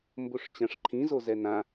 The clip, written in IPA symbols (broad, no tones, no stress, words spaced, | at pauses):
mboʂt͡ɕãʂǃʰĩzo zɛnã